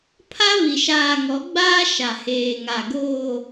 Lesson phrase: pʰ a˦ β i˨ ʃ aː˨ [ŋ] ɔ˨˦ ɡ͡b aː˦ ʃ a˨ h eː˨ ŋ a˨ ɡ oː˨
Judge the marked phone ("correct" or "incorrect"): correct